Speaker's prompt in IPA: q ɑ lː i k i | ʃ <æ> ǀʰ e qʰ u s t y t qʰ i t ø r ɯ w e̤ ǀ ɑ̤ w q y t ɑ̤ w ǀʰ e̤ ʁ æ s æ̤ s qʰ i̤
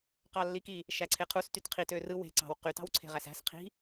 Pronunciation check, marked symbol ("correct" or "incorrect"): correct